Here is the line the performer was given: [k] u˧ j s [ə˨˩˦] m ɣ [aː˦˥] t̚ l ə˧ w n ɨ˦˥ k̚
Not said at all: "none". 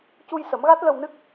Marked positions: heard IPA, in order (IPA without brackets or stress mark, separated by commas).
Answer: c, ə˨˩˦, a˦˥